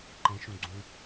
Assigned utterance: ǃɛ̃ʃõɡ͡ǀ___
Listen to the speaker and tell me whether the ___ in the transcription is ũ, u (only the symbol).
ũ